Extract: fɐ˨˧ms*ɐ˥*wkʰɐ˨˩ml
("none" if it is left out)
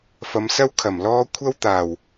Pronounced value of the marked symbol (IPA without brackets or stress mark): ɐ˥